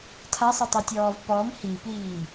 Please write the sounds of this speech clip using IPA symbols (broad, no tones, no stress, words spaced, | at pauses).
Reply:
tʰasˤɪtˤitʲɔːv pɔm hipiː